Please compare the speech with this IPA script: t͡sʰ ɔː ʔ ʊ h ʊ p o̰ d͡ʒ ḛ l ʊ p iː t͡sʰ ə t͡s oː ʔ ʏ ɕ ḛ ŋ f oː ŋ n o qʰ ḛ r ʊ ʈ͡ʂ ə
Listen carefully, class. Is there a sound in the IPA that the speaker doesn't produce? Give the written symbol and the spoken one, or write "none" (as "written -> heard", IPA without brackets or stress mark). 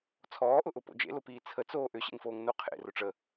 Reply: h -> ʔ